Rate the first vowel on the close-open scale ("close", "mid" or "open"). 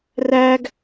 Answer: open